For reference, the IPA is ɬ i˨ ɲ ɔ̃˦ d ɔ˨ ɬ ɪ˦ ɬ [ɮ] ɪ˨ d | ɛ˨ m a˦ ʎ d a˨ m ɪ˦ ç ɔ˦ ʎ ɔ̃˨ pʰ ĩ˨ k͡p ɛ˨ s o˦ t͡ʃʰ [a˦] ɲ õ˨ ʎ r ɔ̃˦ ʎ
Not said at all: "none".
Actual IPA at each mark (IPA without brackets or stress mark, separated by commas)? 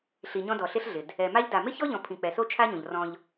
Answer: ɮ, a˦